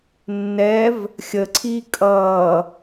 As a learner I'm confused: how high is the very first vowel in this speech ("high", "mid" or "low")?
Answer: mid